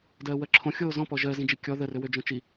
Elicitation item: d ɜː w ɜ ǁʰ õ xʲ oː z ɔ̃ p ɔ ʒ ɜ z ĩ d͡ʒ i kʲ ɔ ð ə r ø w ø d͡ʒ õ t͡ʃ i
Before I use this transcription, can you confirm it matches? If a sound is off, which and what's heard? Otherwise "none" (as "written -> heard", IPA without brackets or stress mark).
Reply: none